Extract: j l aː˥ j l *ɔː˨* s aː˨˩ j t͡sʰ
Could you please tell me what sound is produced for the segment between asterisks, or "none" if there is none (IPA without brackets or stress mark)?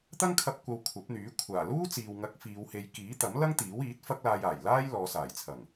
ɔː˨˧